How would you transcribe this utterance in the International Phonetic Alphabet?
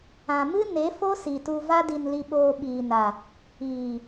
ã˨ m ɨ˦ n e˨˦ f o˦ s i˨ t u˧ v a˦ d i˧ n l i˧ ɓ oː˧ ɓ iː˨ n a˨ | iː˨

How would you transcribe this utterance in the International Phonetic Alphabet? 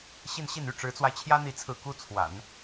ɕ i˥˧ n ɕ i˥˩ n y˥ ʈ͡ʂ ɻ̩˧˥ t͡s w a˧ ɪ̯ t͡ɕʰ j ä˥ n̪ i˥˧ t͡sʰ ɹ̩˥˩ k u˥ t͡sʰ w a̰˨˩˦ n

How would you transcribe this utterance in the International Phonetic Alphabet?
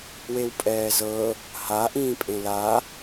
w e w pʼ ɛː z ɤ | h a ʔ ĩː pʼ ẽ l a

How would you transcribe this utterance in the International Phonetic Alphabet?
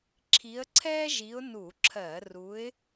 ǁʰ i˨˦ ə̯ ǀʰ ɛː˥ ʒ i˨˦ ʊ̯ n u˧˩˧ ǁʰ ɜ˧˩˧ r u˨˦ ɪ̯

